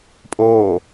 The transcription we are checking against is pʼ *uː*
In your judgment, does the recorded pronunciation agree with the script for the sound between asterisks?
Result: no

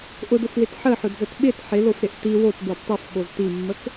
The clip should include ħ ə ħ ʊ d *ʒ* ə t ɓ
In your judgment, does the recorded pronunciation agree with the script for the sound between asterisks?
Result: no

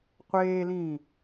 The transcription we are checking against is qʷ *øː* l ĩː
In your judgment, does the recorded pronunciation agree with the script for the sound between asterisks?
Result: no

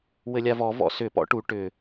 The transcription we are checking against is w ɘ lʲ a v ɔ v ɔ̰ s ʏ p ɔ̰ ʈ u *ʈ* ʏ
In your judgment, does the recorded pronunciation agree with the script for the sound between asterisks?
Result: yes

